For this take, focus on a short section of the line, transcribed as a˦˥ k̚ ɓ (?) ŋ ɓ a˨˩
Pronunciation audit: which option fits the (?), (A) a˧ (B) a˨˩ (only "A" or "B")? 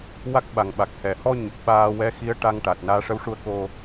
B